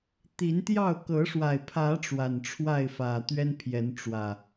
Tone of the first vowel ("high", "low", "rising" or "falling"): rising